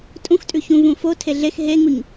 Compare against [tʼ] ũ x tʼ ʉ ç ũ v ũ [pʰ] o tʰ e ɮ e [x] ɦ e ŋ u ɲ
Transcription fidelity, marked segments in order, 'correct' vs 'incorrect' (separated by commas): correct, incorrect, correct